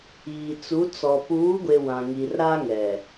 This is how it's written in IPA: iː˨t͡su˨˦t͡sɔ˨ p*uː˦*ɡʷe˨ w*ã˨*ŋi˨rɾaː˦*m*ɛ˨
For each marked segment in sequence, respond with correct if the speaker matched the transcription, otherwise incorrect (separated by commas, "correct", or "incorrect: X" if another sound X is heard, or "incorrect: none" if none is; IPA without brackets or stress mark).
incorrect: uː˨˦, correct, incorrect: ŋ